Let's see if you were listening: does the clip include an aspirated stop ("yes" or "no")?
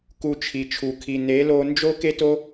yes